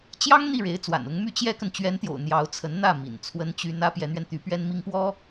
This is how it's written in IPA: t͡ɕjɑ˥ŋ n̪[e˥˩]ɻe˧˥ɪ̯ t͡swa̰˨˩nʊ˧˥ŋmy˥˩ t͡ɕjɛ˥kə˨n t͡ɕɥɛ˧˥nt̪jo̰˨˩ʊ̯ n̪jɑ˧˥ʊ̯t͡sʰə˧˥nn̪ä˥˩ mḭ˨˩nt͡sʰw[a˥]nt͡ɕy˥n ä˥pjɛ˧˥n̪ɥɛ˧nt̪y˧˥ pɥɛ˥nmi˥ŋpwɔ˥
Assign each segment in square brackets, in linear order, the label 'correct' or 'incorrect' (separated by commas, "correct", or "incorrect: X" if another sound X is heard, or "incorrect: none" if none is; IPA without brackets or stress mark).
incorrect: i˥˩, incorrect: ə˥